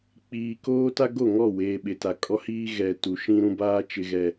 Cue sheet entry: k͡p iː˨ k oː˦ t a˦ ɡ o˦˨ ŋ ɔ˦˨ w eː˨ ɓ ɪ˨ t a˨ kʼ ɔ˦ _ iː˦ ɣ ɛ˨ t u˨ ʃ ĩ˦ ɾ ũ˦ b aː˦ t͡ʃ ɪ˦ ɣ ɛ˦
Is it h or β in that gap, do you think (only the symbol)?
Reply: h